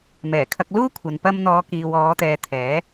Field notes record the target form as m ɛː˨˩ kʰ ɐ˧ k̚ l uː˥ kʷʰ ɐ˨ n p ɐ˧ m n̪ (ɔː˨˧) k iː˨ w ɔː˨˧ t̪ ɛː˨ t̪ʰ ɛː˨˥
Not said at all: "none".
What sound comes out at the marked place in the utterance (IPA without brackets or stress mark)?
ɔː˨˧